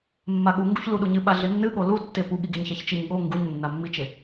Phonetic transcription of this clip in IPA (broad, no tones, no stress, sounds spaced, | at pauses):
mː a ɠ u ŋ ɡ u ç l u ɗ u ɲ ɨ ɓ a ɮ e nː ɨ ɠ o l u tː e p u ɠ i ɡ e ɲ ç a ç t͡ʃ i ɲ ɠ o ŋ ɡ u ɲ nː a mː i t͡ʃ e